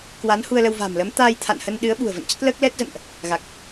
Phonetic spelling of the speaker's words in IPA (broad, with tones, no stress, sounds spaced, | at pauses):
k w a˨˦ n h u˧ ə̯ l ə˧ w v a̤ː˨˩ m l əː˨˦ m t̪ aː˧ j t̪ʰ a̰˧˨ n h ə˧ n ɗ ɨ˨˦ ə̯ ɓ ṳ˨˩ ə̯ v ə̰˧˨ n t͡ɕ ə˦˥ t̚ l əː˦˥ k̚ l ɛ˦˥ t̚ z ə̰˧˨ n ʔ | ɣ a˨˩ k̚